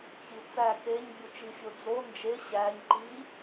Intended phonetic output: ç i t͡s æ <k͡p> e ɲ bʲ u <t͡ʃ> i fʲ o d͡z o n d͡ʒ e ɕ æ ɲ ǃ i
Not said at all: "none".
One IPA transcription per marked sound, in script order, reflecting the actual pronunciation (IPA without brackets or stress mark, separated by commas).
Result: k, t͡ʃ